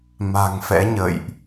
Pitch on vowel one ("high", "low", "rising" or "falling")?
low